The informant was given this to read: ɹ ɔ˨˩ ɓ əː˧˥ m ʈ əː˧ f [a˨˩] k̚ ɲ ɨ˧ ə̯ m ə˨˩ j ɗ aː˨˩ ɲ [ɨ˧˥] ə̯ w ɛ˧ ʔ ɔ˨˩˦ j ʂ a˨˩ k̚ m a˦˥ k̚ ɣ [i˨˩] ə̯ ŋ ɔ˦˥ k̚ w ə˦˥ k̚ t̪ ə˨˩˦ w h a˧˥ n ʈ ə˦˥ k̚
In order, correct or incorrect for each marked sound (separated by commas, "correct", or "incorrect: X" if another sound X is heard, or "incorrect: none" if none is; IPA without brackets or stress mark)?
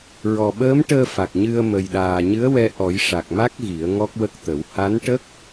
correct, correct, incorrect: i˨˩˦